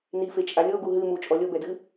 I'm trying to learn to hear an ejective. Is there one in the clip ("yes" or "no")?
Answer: yes